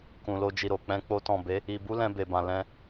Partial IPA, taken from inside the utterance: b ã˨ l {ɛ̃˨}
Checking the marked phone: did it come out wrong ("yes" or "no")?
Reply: yes